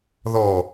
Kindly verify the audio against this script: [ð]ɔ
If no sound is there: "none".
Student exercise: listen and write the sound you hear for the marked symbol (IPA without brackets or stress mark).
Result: ð